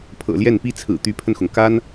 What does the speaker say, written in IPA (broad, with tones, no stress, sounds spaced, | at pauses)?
pʰ ɤ̰˨˩ l j ɛ˥˩ n p i˥ t͡sʰ ɹ̩˨˩ t̪ y˧˥ pʰ ə˧ n x ʊ˩ ŋ k a˥ n